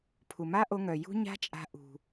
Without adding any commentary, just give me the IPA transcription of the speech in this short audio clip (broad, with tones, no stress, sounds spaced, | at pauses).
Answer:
pʰ u˨ m a˦ ʔ o˧ ŋ œ˨ j ṳ˦ ɲ a̤˦ t͡ʃʼ a̤˧ ʔ ṳ˨